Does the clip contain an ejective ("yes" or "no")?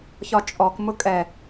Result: yes